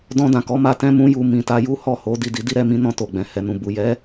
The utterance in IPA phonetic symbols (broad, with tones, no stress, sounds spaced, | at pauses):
d ɔ̃˧ d ã˨ k ɔ˨˦ m a˧ t ɛ̃˦ m ũ˦ j u˧ m ĩ˨ t a˧ j u˦ h ɔ˦˨ h o˨˦ d i˦˨ d i˧ d i˦ ɾ ɛ˧ m ĩ˦ n ɔ̃˧ t o˨ ɡ͡b ɛ̃˨ h ɛ˨ n ũ˨ b u˨ j ɛ˨˦